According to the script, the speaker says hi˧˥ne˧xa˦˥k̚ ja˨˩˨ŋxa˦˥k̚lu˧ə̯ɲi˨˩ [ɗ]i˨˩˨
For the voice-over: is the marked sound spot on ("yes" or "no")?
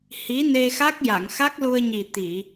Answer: no